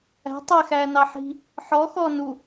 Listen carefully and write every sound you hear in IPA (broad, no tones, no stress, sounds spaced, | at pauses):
æ̤ tˤ ɛ x æː n ɑ ħ i̤ | ħ ɔ x ɔ n u